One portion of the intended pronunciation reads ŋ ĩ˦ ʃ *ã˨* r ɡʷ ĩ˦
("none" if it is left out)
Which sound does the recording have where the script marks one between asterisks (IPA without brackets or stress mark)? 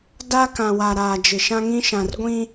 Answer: ã˨